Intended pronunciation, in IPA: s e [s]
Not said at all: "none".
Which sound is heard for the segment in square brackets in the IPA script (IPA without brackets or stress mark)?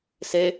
none